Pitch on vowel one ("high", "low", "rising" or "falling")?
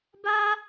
high